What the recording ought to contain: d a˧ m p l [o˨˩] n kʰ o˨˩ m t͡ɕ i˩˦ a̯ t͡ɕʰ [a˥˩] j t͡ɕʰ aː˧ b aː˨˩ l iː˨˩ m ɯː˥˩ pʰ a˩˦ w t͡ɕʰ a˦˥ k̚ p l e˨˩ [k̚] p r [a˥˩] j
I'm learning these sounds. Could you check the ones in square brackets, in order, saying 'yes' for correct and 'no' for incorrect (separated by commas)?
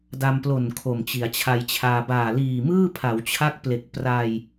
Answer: yes, no, yes, no